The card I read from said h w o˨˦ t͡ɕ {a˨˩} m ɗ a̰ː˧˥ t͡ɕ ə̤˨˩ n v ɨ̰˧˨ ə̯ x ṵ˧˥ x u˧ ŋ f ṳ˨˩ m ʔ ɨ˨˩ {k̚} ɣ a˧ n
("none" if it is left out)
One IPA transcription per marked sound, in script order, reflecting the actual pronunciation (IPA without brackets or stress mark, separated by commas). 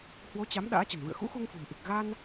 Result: a˨˦, k̚